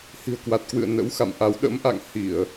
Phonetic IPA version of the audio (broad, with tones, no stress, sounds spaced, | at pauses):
h i̤˨˩ ə̯ k w a˨˩ t̚ k w ɨ̰˧˨ ə̯ n ə̰˧˥ w x a̰˧˨ m ʔ a˨˦ w ɗ ə̰˧˥ m ʔ a̰˧˨ ŋ h i˧˩˨ ə̯